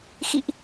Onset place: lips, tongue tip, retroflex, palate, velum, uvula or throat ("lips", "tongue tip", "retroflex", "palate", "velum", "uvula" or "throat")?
velum